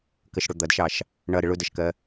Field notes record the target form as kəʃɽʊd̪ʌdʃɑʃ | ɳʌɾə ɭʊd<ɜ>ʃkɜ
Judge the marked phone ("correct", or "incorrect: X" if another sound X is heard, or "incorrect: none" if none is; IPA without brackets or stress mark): correct